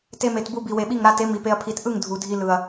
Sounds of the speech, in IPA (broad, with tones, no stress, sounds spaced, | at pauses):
t e˧ m e˨ t b u˧ b i˨ w e˨ ɓ i˦˨ ŋ ɾ a˧ t e˨˦ m i˨ p e˧ ɐ̯ pʰ i˨ t ʔ ɯ˦˨ ŋ dʱ u˨ dʱ i˧ l ɯ˨ ɐ̯